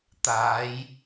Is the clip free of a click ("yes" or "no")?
yes